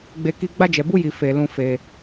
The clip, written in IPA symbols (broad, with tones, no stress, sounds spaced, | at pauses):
ɡ͡b e˦ k i˦ ɡ͡b a˦ d͡ʒ ɛ˧ b u˦ j i˧ f e˧ l ũ˧ f e˧